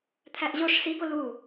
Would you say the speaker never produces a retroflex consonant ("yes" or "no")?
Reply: no